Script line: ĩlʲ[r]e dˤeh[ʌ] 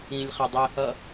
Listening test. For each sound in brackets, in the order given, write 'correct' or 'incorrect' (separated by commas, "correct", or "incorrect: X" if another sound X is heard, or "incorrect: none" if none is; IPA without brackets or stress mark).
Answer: incorrect: χ, correct